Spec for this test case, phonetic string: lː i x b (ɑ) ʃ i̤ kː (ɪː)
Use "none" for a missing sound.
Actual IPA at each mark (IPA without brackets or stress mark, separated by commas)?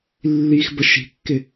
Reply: ə, ɪ